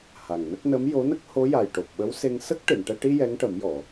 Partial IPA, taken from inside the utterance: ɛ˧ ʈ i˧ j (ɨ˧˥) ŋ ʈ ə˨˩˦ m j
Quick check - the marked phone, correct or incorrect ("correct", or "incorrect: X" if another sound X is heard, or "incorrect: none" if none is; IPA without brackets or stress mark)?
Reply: incorrect: ɛ˧˥